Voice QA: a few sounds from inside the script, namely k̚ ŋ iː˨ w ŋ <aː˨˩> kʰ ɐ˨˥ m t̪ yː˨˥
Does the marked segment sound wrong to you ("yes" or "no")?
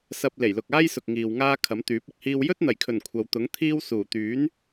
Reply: yes